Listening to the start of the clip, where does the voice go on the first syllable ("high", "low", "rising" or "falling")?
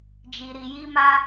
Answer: low